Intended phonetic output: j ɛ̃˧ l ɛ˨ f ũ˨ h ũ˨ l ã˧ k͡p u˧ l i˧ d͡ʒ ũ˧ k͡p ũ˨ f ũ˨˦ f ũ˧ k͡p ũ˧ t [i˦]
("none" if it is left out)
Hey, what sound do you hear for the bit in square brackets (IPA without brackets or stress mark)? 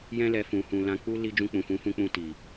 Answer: i˨